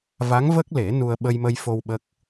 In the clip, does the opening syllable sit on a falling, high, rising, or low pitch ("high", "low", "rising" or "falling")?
rising